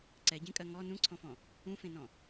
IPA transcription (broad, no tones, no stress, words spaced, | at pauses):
ǀɛɟẽkʼɜ ŋɔ nũǀʰɔ̃fɔ̃ | ũfẽnɔ̃